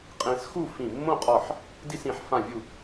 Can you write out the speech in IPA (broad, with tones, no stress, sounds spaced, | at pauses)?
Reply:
qʼ ẽ˧ s x u˥˧ f ĩ˧˩ mː õ˥˧ qʼ ɒ˧˩ ħ | d i˥˧ s ĩ˩˧ ħ f ã˧˩ vʲ u˧˩